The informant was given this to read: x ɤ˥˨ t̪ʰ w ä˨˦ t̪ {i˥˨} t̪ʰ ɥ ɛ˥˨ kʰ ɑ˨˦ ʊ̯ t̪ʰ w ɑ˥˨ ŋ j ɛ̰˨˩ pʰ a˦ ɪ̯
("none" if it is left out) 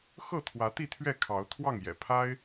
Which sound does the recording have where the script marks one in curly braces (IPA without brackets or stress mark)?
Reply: i˥˨